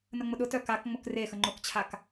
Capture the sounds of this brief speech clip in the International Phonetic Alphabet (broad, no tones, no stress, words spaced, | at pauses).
nəŋ͡mʊɗʊtœ kakŋ͡mʊk re xəŋ͡ǃʊkt͡ɕʰak